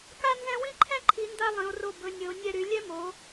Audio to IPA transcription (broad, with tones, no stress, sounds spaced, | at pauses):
k a˥ n z ɛ̃˥ w ĩ˥ ǃʰ ɛ̃˥ ǃʰ i˨˦ n d a˥ lˠ ĩ˨˦ o̯ r o˦˨ b ɵ˨˦ nʲ ɵ˨˦ o̯ nʲ ɛ˦˨ ɾ y˨˦ lʲ ɛ˥ m o˨˦